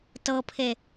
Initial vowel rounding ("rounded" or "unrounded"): unrounded